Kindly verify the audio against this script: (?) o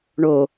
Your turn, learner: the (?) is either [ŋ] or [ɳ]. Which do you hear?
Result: ɳ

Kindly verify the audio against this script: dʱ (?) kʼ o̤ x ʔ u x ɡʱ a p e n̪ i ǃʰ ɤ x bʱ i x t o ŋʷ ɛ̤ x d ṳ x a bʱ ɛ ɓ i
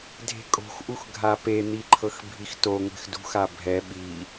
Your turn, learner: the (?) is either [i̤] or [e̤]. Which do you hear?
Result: e̤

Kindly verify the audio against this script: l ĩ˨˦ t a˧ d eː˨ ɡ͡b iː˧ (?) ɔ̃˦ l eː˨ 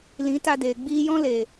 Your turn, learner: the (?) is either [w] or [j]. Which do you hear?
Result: j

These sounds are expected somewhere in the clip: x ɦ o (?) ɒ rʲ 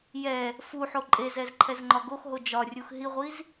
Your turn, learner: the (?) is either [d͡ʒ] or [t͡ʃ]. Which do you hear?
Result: d͡ʒ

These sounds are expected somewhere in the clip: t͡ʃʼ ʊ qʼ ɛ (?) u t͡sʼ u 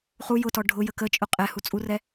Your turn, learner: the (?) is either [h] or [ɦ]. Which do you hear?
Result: h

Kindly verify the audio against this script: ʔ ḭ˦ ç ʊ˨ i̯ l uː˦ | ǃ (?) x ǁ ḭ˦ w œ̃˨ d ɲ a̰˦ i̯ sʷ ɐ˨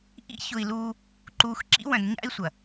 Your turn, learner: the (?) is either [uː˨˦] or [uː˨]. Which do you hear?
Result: uː˨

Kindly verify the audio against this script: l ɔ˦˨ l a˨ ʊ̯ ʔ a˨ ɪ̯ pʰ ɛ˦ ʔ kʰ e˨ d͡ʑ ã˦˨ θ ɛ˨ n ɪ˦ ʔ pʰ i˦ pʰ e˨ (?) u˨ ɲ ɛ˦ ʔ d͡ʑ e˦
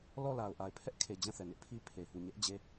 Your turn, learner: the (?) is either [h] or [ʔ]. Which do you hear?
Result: h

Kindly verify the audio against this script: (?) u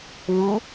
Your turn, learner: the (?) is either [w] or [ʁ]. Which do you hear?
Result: w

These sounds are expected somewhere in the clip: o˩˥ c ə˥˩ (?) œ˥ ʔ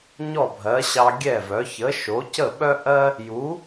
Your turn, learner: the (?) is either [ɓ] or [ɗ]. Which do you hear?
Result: ɓ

